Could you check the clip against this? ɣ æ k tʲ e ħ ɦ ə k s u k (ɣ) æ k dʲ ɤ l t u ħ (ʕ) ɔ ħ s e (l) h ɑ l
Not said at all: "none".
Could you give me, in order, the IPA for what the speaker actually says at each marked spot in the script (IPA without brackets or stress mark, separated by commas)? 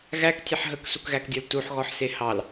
ɣ, ɣ, none